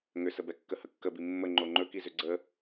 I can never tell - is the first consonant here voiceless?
no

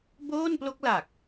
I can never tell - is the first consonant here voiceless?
no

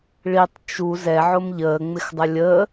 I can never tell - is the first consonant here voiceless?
no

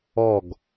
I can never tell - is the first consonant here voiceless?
no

